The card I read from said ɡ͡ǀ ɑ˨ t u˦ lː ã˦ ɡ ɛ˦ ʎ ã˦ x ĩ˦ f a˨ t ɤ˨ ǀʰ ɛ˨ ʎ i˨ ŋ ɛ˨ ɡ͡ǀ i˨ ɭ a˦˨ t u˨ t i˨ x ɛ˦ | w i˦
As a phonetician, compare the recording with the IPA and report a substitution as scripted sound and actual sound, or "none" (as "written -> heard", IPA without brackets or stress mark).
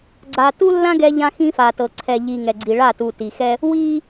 ɑ˨ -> a˨